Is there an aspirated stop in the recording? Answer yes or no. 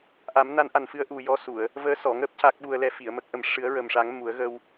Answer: no